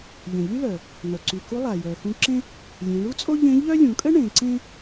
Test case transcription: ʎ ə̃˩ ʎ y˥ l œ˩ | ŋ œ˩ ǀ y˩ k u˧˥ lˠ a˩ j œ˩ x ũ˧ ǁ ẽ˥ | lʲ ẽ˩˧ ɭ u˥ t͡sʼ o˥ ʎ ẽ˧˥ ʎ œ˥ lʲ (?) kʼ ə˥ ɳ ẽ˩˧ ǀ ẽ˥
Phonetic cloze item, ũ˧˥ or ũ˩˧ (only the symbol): ũ˩˧